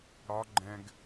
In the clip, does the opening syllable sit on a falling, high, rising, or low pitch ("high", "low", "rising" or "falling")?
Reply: rising